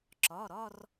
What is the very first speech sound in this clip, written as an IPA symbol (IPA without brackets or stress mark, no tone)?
ǁ